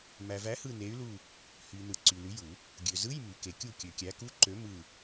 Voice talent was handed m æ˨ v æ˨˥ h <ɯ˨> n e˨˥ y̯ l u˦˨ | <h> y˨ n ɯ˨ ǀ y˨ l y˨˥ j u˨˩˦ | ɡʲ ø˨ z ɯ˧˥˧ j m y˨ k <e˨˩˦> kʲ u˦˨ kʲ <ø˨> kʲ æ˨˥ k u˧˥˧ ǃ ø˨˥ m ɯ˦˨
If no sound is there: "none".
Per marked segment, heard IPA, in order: ɯ˦˨, h, e˨˩˦, ø˨

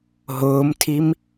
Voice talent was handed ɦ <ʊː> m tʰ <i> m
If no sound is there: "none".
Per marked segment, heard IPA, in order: ʊː, i

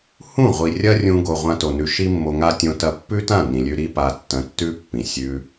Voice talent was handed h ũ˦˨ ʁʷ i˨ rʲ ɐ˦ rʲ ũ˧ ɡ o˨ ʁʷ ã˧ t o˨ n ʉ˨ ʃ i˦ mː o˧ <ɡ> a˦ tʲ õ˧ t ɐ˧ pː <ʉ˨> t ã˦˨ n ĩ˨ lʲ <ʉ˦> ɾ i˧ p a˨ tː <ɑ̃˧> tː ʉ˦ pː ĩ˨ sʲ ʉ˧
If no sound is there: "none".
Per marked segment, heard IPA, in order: ŋ, ʉ˦, ʉ˧, ɐ̃˧

